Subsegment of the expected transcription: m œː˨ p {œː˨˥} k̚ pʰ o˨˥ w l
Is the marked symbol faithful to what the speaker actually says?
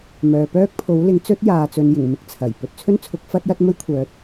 no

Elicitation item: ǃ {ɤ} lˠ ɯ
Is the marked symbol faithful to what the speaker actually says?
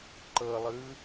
yes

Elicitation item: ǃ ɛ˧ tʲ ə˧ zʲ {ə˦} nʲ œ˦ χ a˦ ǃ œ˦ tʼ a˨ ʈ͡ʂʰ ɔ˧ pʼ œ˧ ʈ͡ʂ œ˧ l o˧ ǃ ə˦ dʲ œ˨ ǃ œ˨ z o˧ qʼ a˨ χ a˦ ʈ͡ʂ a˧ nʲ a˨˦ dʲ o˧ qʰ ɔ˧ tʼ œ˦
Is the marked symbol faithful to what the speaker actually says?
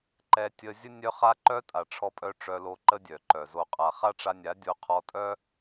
yes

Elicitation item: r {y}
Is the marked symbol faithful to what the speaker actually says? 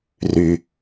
yes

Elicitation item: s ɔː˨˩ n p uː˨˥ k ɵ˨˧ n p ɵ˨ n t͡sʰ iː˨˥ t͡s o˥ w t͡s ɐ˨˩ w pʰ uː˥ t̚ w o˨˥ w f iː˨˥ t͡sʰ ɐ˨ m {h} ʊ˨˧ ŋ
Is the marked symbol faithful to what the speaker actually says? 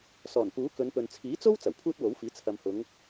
yes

